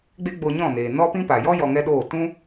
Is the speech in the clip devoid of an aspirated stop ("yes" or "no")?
yes